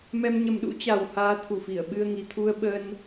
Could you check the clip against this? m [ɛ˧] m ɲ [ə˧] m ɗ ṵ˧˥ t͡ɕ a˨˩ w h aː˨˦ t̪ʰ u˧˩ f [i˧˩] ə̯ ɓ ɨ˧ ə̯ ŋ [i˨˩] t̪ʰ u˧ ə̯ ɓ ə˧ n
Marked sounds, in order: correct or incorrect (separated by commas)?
correct, correct, correct, correct